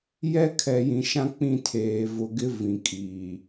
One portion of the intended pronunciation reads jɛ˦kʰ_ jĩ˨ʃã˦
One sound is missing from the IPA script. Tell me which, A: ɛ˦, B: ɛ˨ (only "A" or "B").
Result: B